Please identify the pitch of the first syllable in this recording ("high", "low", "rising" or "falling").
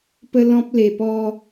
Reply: high